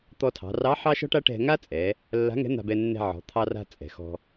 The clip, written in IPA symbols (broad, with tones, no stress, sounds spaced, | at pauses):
t̪ ɔ˧ tʰ ɑ̤˩˧ r ɑ˧˥ ħ ɑ˥ ʃ ɔ̤˥ ʈ a˥ ʈ ɛ̤˧ ŋ a˥ t͡sʼ ɛ˩˧ | lː a̤˧˥ ŋ ɛ̤˧˥ n̪ a̤˧ b ɛ˧ nː ɛ̤˧ ʕ ɔ̤˩˧ t̪ʰ ɑ˧ r a̤˧ t͡sʼ ɛ̤˩ x ɔ̤˧